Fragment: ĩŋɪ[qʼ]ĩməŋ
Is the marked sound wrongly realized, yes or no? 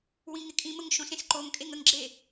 yes